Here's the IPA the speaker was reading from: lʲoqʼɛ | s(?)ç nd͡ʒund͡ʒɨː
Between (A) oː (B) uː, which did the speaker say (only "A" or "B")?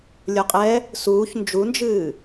B